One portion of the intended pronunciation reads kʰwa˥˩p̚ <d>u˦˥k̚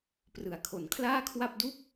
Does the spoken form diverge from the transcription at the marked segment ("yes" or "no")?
no